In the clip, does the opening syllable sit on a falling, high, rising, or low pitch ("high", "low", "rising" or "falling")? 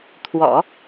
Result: low